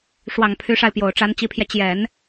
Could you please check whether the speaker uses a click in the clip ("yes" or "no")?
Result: no